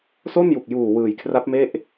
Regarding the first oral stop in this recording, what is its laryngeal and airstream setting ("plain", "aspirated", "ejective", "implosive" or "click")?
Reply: plain